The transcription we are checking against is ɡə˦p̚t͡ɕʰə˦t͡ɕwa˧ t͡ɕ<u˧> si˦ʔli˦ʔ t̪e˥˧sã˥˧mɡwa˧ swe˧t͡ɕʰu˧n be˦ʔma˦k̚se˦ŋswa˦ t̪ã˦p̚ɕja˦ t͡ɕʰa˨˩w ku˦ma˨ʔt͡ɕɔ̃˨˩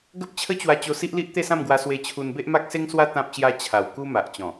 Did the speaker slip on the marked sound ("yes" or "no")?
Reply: yes